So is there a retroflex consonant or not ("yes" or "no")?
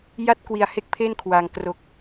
no